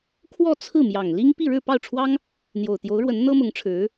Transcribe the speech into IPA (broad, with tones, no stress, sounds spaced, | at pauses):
kʰ w ɔ˥˧ t͡sʰ ɹ̩˥˩ m j ɑ˨˩ ŋ l i˥ ŋ p i˥˧ ɻ ɻ̩˥˧ p ɑ˥˩ ʊ̯ ʈ͡ʂʰ w ɑ˥ ŋ | n̪ j o˨˩ ʊ̯ t̪ j o˧˥ ʊ̯ ɻ w ə˧˥ n n̪ ɤ˥ m ʊ˧˥ ŋ ʈ͡ʂʰ ɻ̩˧˥